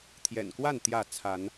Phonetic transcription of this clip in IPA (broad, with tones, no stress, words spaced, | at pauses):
t̪ʰjɛ̰˨˩nkwa˥˨n t̪jä˥˨ t͡sʰa˨˦n